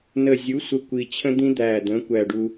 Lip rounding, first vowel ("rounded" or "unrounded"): unrounded